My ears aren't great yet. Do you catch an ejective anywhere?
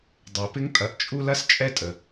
yes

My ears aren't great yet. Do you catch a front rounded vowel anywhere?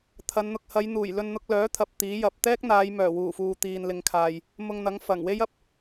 yes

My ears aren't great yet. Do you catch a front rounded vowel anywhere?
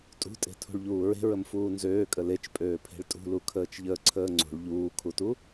yes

